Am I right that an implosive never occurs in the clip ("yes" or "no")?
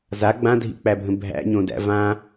yes